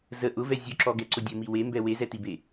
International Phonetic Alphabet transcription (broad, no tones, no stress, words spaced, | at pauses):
zə ʔʊvɛ zʲʊǁɔɡɛǀʊ dʲəmi wembɛ wezɛtibe